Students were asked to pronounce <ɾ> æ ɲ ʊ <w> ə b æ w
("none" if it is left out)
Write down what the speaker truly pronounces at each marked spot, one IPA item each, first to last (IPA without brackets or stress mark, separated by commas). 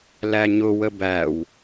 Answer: l, w